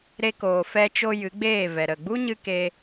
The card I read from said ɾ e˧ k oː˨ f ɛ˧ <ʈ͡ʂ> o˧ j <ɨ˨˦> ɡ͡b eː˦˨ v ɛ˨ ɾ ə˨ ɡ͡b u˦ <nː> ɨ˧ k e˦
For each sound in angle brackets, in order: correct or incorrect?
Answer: incorrect: t͡ʃ, correct, incorrect: ɲ

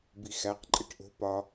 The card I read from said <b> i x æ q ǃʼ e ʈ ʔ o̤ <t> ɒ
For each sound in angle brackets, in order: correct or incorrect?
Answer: correct, incorrect: p

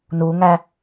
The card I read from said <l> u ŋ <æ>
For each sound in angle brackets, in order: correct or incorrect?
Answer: incorrect: n, correct

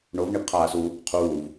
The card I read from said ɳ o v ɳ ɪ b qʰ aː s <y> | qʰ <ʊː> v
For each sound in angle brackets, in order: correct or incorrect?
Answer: incorrect: u, incorrect: uː

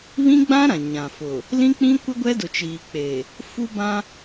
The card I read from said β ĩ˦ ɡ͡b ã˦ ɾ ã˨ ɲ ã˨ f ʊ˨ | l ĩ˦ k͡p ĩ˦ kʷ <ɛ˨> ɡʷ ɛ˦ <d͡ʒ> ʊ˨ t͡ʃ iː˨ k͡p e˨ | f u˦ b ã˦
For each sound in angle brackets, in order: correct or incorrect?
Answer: incorrect: ɛ˦, incorrect: d

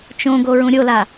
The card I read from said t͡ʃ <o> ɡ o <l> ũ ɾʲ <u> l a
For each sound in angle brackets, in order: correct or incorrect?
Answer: incorrect: õ, incorrect: ɹ, incorrect: o

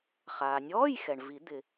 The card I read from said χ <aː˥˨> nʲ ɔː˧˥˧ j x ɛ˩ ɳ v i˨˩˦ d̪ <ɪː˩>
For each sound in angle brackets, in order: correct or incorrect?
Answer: incorrect: aː˩, incorrect: ɪ˩

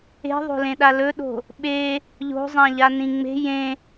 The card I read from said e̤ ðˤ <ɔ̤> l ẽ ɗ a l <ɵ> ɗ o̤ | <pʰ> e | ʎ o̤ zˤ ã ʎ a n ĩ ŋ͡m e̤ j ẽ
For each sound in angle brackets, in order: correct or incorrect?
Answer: incorrect: o̤, correct, incorrect: ɓ

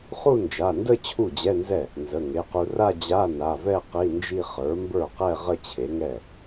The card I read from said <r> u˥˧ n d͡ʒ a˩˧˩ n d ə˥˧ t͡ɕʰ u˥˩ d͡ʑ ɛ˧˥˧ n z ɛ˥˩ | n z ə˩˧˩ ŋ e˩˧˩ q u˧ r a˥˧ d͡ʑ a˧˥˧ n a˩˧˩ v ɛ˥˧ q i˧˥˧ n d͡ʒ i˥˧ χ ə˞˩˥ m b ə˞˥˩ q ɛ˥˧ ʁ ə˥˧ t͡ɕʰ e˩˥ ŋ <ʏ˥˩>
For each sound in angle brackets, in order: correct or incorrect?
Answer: incorrect: χ, incorrect: ɛ˥˩

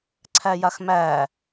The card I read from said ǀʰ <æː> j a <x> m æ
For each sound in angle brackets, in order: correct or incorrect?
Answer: incorrect: æ, correct

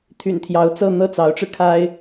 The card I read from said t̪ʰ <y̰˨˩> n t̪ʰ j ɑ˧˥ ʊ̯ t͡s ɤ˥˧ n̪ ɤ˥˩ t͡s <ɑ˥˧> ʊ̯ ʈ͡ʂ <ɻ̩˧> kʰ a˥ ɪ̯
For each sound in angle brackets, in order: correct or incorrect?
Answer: correct, incorrect: ɑ˧˥, correct

